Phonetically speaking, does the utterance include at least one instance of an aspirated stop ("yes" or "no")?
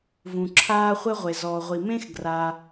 yes